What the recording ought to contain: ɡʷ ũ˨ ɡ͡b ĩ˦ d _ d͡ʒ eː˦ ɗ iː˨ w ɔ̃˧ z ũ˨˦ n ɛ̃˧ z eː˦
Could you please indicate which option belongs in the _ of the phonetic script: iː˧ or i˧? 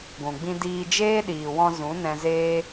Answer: iː˧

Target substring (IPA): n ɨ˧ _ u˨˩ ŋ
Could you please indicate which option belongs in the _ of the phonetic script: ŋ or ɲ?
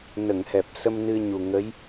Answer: ɲ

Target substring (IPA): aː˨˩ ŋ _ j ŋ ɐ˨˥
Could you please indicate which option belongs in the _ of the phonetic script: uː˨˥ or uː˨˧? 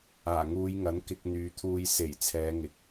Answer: uː˨˧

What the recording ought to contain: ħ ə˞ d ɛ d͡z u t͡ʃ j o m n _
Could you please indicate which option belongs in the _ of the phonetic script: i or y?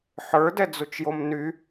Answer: y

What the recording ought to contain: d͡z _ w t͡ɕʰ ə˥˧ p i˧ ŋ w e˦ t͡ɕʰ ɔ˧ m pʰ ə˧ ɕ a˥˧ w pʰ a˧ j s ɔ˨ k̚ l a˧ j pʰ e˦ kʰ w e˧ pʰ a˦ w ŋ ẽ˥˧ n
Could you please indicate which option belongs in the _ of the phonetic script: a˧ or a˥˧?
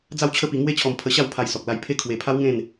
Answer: a˥˧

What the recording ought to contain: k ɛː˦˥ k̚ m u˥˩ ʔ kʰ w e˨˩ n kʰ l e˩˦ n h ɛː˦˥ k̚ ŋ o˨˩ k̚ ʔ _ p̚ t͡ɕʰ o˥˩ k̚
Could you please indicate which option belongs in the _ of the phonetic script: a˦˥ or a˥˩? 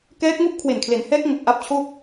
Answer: a˦˥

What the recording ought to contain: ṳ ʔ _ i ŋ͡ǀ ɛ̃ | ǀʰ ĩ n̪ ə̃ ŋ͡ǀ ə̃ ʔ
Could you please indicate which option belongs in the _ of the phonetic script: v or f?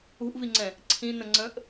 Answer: v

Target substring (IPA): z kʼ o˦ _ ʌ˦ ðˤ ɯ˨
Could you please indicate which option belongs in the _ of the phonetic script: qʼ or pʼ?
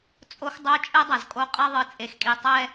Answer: qʼ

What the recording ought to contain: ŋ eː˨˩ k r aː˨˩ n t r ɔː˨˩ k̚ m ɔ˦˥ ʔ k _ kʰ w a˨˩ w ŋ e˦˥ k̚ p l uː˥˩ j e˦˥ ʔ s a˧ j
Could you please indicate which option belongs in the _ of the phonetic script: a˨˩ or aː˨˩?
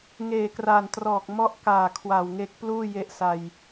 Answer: aː˨˩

